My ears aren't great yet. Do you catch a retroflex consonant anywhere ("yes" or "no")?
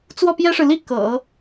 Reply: yes